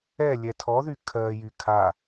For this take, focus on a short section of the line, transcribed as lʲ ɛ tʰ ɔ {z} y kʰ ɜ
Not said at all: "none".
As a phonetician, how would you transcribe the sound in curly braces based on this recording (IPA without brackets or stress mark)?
ð